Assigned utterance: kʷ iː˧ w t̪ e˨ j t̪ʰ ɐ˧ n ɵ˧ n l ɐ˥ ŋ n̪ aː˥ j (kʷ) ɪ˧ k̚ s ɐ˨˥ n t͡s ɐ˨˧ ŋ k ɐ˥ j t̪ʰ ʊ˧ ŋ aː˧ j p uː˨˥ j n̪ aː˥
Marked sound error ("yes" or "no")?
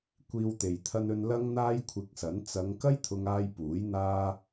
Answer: yes